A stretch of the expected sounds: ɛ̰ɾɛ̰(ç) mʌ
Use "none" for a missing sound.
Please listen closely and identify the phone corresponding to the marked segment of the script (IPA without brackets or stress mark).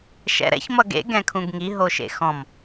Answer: ç